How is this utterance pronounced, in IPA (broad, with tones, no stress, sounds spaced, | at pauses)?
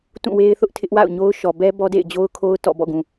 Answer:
t ũ˦˨ w e˦ ɪ̯ θ ʊ˦ ʔ tʰ ɪ˦ ʔ w a̰˦˨ ʊ̯ ɲ o˦ ʊ̯ ʃ ɔ˨ b ɛ˦ b ɔ˦ d ḛ˦˨ ɪ̯ d͡ʑ o˦ ʊ̯ kʰ o˦ ʊ̯ t ɔ̰˦˨ b ɔ̰˦˨ ɡ ũ˨